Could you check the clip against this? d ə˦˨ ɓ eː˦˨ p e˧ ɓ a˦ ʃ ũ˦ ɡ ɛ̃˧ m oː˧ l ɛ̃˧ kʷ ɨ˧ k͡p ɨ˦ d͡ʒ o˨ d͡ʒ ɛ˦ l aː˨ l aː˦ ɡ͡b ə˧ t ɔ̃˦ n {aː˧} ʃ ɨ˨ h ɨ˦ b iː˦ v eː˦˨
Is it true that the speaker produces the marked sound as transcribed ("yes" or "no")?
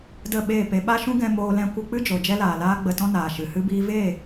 no